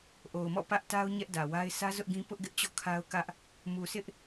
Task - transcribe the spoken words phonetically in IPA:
ʔ o˨ ʊ̯ m ɔ̰˦˨ p ä˦ ʔ t a˦ ʊ̯ ɲ ɛ˦ ʔ d ä˨ w a˦ ɪ̯ s ä˦ z ʊ˦ ʔ ɡ ĩ˦ p ʊ˦ ʔ ɡ ɪ˦ ʔ t͡ɕ ɔ̰˦˨ kʰ a˦ ʊ̯ k ä˦ ʔ | m u˨ s ɪ˦ ʔ

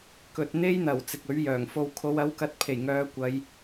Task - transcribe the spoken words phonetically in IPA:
k ɵ˨ t̚ n̪ e˥ j n̪ ɐ˨˩ w t͡s ɪ˨ k̚ ɵ˨˥ ɥ j œː˨˩ ŋ f o˧ w kʰ o˨˧ w ɐ˨˥ w k ɐ˨˥ t̚ pʰ e˨˩ j ŋ œː˨˧ kʷ ɐ˨˧ j

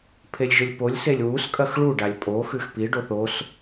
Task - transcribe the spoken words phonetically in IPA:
pʰ e lʲ ʒ ɵ lʲ p o lʲ s e lʲ w u s kʼ ɐ x ɭ u ɖ a lʲ pʼ o x ʉ x p i ɖ o θ o s

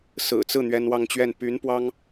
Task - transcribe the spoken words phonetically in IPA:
s ɹ̩˨˩ t͡s ɹ̩˥˩ n̪ ɥ ɛ˥ n w ɑ˥˧ ŋ t͡ɕ ɥ ɛ˥˩ n p y˧˥ n p w ɑ˥ ŋ

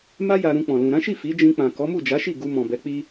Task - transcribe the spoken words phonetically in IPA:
m a˦ j a˧ ɾ ũ˧ k͡p ɔ̃˨ l ũ˨ ɾ ã˨˦ ʃ i˦˨ f i˨˦ d͡ʒ ĩ˧ k͡p ã˨ k ɔ˨˦ m u˦˨ d͡ʒ a˨˦ ʃ i˦˨ ɡ u˧ m ɔ̃˨ b ɛ˨˦ k͡p i˦

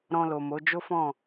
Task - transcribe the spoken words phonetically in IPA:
ɾ ɔ̃˧ l o˨ m o˨˦ d͡ʒ o˦ f ɔ̃˦˨

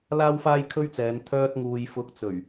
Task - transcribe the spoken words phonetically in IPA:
l aː˥ w f aː˥ j kʰ ɵ˥ ɥ t͡s ɛː˨˧ n t̪ʰ œː˧ t̚ ŋ uː˨ j f ʊ˨˥ k̚ t͡s ɵ˨˩ ɥ

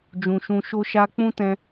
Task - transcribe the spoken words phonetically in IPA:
d͡ʒ ũ˨ ʃ ũ˧ ʃ o˦ ʃ a˦ k͡p ũ˦ t ɛ̃˧

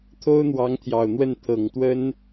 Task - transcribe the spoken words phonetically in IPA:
t̪ʰ o˥ ʊ̯ n̪ w ɑ˧˥ ŋ t̪ʰ j ɑ˨˩ ʊ̯ n̪ w ə˥˩ n t̪ʰ ɤ˨˩ ŋ t̪ w ə˥ n

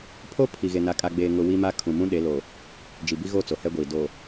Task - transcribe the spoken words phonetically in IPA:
pʰ o˦ pʰ i˨ ɣ e˨ n a˨ kʼ a˨ ɡ͡b eː˨ ŋ ʊ˨ w i˦ m a˦ kʰ ũ˨ m ũ˦ ɗ e˨˦ l o˨ | d͡ʒ i˨ b i˦ ɣ o˦˨ t͡s o˨ h ɛ˦ ɡʷ iː˨ d o˨

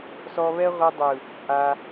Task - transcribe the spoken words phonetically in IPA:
s ɔ˧ β ɛ˦ ʁʷ ɯ˧ dˤ ɯ˨ | ʔ a˧

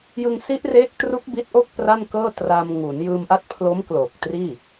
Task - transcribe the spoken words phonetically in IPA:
j ɯ˧ ŋ s i˦˥ ʔ r eː˦˥ k̚ t r u˦˥ k̚ b i˦˥ t̚ ʔ o˥˩ k̚ p r a˥˩ n k ɤː˥˩ t r a˧ m ŋ u˩˦ n j ɯː˧ m ʔ a˦˥ t̚ pʰ l o˦˥ m k l oː˨˩ k̚ t r iː˥˩

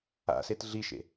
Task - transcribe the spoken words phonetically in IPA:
a̰ s e t ɮ i ʃ ḛ

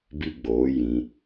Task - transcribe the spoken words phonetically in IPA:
b i˦ ɡ͡b oː˨˦ j ĩ˧

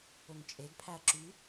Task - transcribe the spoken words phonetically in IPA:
ɵ ŋ t͡ʃʼ e ɡ pʰ æ ɐ̯ ǁ y

